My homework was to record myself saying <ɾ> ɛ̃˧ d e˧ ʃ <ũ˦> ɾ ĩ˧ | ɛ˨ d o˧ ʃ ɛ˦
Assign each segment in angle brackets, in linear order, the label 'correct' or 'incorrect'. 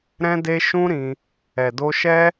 correct, correct

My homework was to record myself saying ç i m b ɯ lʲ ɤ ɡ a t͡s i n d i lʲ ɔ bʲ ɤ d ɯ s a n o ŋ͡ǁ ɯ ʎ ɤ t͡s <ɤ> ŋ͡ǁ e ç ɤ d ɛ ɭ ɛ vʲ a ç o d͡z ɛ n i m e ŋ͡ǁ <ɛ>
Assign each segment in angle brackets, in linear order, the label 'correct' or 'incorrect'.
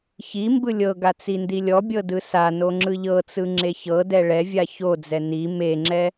incorrect: ɯ, correct

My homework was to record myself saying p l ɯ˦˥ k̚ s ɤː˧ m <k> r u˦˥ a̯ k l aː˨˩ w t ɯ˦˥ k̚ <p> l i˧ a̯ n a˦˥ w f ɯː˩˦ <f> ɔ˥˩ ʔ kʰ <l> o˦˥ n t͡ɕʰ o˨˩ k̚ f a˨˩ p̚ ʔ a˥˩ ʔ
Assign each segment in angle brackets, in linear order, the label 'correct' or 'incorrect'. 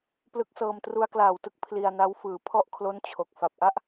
incorrect: t, incorrect: pʰ, incorrect: pʰ, correct

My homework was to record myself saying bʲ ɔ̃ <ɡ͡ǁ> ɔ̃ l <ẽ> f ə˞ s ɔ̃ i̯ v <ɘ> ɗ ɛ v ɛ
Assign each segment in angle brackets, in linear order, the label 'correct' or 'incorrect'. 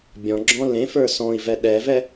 correct, correct, incorrect: ɛ

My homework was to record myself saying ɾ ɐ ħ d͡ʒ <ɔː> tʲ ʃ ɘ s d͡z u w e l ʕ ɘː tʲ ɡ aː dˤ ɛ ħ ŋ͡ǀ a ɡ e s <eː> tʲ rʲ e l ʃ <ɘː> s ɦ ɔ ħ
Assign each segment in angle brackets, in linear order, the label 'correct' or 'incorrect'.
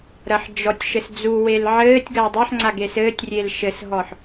incorrect: ɔ, incorrect: ɘː, incorrect: ɘ

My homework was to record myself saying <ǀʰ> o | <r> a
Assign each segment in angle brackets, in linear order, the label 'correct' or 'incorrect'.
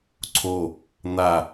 correct, incorrect: n̪

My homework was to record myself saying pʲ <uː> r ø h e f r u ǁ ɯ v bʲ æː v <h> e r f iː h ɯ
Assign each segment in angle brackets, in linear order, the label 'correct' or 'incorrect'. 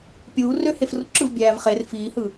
correct, incorrect: χ

